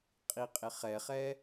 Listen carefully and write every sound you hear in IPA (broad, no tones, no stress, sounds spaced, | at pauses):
qʼ i qʼ ɪ χ ɛ χ ɛ